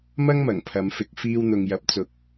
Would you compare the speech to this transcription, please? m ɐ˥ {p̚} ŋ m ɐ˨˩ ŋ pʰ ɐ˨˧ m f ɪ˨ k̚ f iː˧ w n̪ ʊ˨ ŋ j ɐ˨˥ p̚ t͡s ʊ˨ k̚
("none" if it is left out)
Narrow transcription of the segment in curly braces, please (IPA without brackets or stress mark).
none